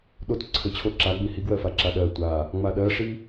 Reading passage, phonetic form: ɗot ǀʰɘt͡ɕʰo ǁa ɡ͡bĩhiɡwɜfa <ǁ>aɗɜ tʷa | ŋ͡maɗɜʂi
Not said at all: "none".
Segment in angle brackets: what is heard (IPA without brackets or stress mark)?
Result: ǁ